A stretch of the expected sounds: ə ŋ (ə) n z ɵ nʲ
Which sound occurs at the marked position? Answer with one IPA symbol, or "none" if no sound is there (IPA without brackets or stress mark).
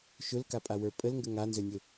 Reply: a